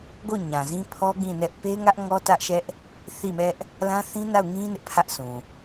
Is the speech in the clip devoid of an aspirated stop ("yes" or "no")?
no